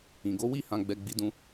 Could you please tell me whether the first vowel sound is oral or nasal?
nasal